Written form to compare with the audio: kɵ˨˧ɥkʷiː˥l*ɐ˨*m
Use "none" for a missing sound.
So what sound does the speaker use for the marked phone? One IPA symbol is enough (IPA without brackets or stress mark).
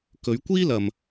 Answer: ɐ˨